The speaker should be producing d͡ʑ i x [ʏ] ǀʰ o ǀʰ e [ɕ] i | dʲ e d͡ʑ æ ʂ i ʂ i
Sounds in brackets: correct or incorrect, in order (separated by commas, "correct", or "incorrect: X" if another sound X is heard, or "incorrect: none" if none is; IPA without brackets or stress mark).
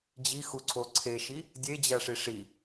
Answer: incorrect: u, incorrect: ʃ